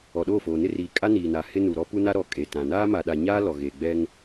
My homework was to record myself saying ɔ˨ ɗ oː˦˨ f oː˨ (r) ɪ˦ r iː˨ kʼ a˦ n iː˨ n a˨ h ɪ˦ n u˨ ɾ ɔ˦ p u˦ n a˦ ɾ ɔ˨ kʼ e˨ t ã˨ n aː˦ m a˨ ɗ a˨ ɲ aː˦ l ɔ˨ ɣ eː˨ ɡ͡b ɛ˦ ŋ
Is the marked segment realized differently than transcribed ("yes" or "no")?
yes